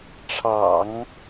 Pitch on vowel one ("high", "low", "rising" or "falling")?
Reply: low